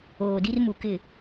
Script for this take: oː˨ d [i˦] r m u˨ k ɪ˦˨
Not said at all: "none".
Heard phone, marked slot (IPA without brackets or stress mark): i˦